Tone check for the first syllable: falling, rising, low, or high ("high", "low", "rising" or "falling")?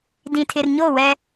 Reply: low